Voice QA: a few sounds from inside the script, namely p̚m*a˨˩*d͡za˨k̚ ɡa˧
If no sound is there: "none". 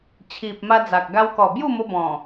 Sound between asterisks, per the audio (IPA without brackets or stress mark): a˧